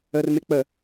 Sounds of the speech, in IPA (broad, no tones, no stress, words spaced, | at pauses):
ərmɪ k͡pə